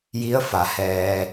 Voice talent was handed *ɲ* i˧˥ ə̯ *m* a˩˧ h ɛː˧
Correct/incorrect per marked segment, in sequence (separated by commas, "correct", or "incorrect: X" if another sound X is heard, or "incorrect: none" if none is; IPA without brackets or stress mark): incorrect: j, incorrect: f